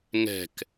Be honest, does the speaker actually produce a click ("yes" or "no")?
no